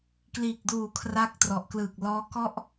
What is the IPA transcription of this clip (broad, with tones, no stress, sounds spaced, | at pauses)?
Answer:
k l iː˨˩ k̚ d uː˨˩ kʰ r a˦˥ k̚ t r ɔ˨˩ ʔ k l ɯː˨˩ k̚ l ɔː˦˥ k ɔ˥˩ ʔ